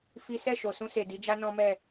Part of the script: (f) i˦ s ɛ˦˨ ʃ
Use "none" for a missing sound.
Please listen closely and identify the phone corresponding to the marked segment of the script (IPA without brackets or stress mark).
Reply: f